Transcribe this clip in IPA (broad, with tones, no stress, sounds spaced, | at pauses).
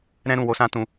ɾ ɛ̃˦ ɾ ũ˦˨ w o˧ s ã˦ t ũ˧